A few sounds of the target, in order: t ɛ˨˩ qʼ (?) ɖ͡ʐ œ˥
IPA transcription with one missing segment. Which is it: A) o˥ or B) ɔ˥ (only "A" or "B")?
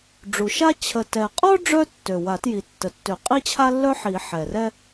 B